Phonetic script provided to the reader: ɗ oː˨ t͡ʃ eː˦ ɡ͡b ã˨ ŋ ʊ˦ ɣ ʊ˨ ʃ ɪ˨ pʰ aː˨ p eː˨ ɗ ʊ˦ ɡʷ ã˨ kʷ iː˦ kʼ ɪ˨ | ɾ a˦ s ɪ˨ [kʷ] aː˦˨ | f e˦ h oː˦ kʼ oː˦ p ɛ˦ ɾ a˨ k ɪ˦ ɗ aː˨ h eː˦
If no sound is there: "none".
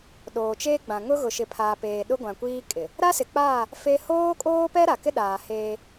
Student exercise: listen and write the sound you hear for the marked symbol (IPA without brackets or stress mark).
k͡p